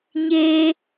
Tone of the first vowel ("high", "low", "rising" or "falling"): high